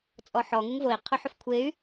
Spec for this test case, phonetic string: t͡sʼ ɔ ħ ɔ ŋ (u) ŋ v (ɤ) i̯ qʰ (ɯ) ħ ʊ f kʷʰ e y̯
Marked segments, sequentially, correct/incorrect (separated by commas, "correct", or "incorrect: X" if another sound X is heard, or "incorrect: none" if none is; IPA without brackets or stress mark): correct, incorrect: o, incorrect: ʊ